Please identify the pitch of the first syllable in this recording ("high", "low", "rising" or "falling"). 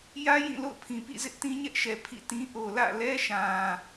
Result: high